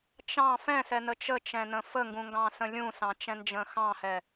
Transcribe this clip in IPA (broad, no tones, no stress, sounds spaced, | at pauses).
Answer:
t͡ʃ ɑ̃ f ɛ̃ s ɛ n ə t͡ʃ ə t͡ʃ ɛ̃ n ə̃ f ə ŋ ɡ ũ ŋ ɡ ɑ̃ s ə̃ lʲ ũ s ɑ̃ t͡ʃ ɛ̃ n d͡ʒ ə̃ x ɑ̃ h ɛ